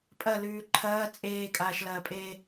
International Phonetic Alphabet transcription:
pʼ ɐ l ʉː ǃʰ ɐː t͡sʼ eː kʼ aː ʃ l ɐː pʼ eː

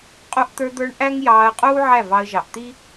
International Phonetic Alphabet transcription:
qʼ u˧ ʔ t̪ ə˞˧ d̪ ə˞˧ ɳ ʔ æ˦ ŋ j ɑː˧ ə̯ qʼ uː˦ ʕ æ˦˨ v ɑ˧ ə̯ ʒ ɑ˨ ʔ t̪ i˦

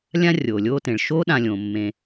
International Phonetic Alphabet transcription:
lʲ ã˦ rʲ oː˩ lʲ oː˦ t ẽ˩ ɭ ʃ oː˥ ɗ ã˨ lʲ õː˩ mː ẽ˨

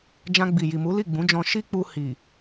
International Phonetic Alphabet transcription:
d͡ʒ ã˧ ɡ͡b i˨ j i˨ m u˨˦ l i˦˨ ɡ͡b ũ˨˦ d͡ʒ ɔ̃˧ ʃ i˦ k͡p u˧ h i˨

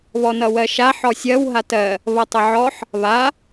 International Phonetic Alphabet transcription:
β ɔ n ʌ w ɜ ʃ a ħ ɔ sʲ ɜ w ɦ a t ɜ | β ʌ tˤ ə ʕ ɔ ħ | β a

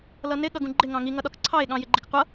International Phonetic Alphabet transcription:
l ʌ n ɪ ɠ ʌ ɡ ũ ɡ͡ǃ ɪ ŋ ɑ̃ ŋ i ŋ ʌ ɗ ɒ k ǀʰ ɑ e̯ ɠ ɑ̃ j ɪ ɡ͡ǃ ɪ k qʷ ʌ

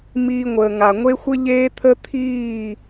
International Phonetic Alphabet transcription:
m iː˧ ŋʷ əː˨ ŋ a˨ ŋʷ e˦ xʷ ɘ˦ ʎ eː˦ t̪ʰ ə˦ t̪ʰ iː˦˨

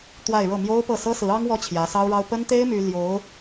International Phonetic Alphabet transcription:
t̪ w a˥˧ ɪ̯ ɻ ɤ˥˩ m j o˥ ʊ̯ p ɤ˥˩ s ɤ˥ s ɹ̩˧˥ ɑ˥ ŋ w ɔ˥ t͡ɕʰ j ä˧˥ s ɑ˥ ʊ̯ ɻ ɑ˥ ʊ̯ p ə˥ n t̪ e˥ ɪ̯ m y˥ l j o˧˥ ʊ̯

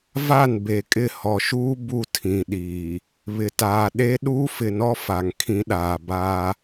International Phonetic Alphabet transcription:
v a˦˨ n b e˨ kʼ ɪ˦˨ h ɔ˨ ʃ uː˦ b u˦ tʰ ĩ˨ ɗ iː˨ | β ɪ˨ t aː˨ ɗ e˦ ɗ uː˦ f ɪ˨ n ɔ˦ f a˨ ŋ kʰ ĩ˦ ɗ aː˨ b aː˦

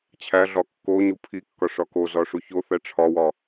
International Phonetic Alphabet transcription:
t͡ɕʰ æ ɮ ɒ kː o ɲ u pʰ i kː ɒ ʂ ɒ k o z ɒ ʂ u ç o θ æ ʈ͡ʂʰ ɒ w ɒ

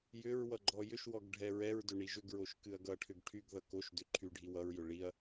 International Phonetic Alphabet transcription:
j ʏ ɹ w ʌ ɡ͡ǃ ɔ j ʏ ʃ w ɔ ɡ ɖʱ ɛ ɹ ɛ ɹ d ʏ ɳ i ʒ ʏ ɡ ɹ o ʃ k ɨ ɐ̯ ɡ ʌ ʈʰ ʏ ɡ ʈʰ y ɡ ð ʌ k o ʃ d ʏ ǃʰ y ɖʱ i w ʌ ɹ j ʏ ɭ i ɐ̯

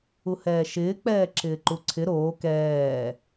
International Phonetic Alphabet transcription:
u h ɛː ʃ ɪː k͡p ɛː ǁ ɪː ǃ u ǀʰ ɪ ɾ oː k ɛː

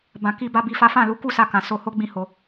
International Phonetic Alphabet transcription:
b ã˨ k i˨ b a˨ b i˨ f a˨˦ f ã˦˨ l u˧ k u˦ s a˧ k ã˨ s o˧ h o˦ ɡ͡b ĩ˦ h o˧

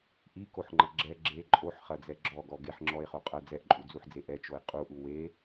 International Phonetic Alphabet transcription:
ʔ i k o ħ ŋ͡ǃ ɐ ɡ͡ǁ ɛ ɡ͡ǁ e ǃʼ o ħ χ ɐ d͡z ɛ ɡ͡ǁ ɔ ɡ ɔ ɡ e ħ ŋ͡ǁ ɔ e̯ χ o qʼ ɐ d͡z ɛ ʔ ǃʼ u d͡z u ħ d͡z e ʔ ɛ t͡ʃ o e̯ qʼ u ʔ u w e

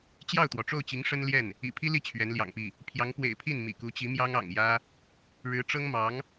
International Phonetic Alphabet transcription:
t͡ɕ j ɑ˥˩ ʊ̯ t̪ w ɔ˩ ʈ͡ʂ o˥˩ ʊ̯ t͡ɕ i˧˥ ŋ ʂ ə˥ n l j ɛ˥˩ n | ḭ˨˩ pʰ i˥ l i˥˩ t͡ɕʰ ɥ ɛ˧˥ n l j ɑ̰˨˩ ŋ p i˥˩ | pʰ j ɑ˧˥ ŋ p w ḛ˨˩ ɪ̯ pʰ i˥˩ n m ḭ˨˩ k u˧˥ t͡ɕ i˧˥ m j ɑ˥ ŋ ɑ̰˨˩ ŋ j ä˥ | ɻ ɻ̩˧˥ ʈ͡ʂ ɤ˥ ŋ m ɑ˧˥ ŋ

